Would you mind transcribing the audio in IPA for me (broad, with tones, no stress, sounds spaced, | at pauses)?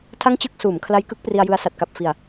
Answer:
tʰ a˥˩ ŋ t͡ɕ ɯ˥˩ k̚ s uː˩˦ m kʰ l a˦˥ j k ɯ˦˥ k̚ p r i˧ a̯ j ɯ˧ a̯ s a˨˩ t̚ k a˨˩ p̚ f i˨˩ a̯